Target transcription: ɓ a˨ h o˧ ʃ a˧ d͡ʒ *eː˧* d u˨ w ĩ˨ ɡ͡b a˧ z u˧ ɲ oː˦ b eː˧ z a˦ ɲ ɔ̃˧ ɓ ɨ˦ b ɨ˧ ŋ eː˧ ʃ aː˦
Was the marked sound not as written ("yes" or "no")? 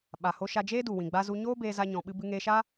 yes